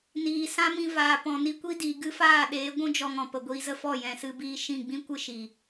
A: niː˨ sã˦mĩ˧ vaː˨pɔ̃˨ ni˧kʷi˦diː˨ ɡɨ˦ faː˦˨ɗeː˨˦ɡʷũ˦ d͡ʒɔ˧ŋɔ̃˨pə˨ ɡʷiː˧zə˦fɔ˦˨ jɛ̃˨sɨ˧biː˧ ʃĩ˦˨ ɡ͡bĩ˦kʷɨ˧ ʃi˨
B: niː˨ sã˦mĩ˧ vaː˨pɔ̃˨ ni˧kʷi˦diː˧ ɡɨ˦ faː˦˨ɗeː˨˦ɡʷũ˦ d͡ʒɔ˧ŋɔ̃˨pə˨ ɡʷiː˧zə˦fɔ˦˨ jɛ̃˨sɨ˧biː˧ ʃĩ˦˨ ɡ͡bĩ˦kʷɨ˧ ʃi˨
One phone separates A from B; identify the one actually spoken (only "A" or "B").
A